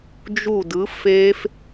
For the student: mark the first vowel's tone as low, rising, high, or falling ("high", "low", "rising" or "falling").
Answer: falling